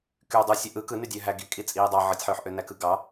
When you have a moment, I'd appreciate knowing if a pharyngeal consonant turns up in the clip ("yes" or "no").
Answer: yes